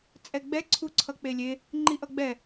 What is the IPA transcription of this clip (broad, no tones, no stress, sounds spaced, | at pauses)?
t͡sʼ ɛ ɡ͡b ɛ ǀʰ u ǀʰ ʌ k͡p e lʲ e | ŋ͡ǃ i ʔ ʌ ɡ͡b ɛ